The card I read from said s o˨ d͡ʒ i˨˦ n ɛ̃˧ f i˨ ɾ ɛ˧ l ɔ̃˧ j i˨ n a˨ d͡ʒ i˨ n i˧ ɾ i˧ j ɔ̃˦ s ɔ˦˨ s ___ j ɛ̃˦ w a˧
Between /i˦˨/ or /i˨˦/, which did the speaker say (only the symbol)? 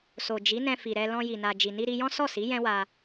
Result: i˨˦